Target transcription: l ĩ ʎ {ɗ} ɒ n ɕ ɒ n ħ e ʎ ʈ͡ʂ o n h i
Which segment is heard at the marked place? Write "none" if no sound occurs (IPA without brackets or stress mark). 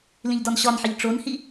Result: d